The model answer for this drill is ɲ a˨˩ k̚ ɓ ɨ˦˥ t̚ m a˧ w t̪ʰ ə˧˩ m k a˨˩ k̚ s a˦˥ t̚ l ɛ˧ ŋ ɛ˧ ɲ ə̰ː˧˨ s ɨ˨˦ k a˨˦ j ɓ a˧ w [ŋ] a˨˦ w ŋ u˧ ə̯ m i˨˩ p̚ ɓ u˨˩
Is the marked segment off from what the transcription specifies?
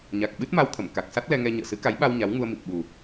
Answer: yes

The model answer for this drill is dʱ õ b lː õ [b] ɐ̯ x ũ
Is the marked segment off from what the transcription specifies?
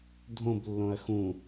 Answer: yes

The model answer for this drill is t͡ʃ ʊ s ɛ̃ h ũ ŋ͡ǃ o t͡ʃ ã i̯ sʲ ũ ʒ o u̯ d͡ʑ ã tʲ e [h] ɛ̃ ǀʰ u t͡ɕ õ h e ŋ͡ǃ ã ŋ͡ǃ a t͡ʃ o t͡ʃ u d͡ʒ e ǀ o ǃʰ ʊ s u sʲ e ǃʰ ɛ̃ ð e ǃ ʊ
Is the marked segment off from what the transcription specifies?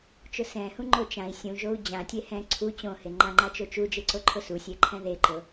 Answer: no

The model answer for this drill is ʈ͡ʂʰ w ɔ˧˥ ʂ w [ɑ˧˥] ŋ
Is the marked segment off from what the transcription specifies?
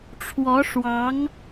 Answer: no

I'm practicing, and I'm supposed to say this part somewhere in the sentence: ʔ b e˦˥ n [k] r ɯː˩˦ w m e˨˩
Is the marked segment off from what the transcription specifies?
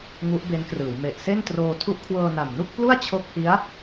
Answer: no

